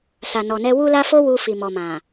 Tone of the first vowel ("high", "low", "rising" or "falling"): low